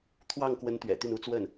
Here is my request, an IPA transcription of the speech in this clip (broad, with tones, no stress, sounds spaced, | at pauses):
t̪ʰ w ɑ˥˩ ŋ k w ə˧˥ n t̪ ɥ ɛ̰˨˩ t̪ y˥˩ n u˧˥ t͡s w ə˥˩ n